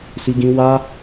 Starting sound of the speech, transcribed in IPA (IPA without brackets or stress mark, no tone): s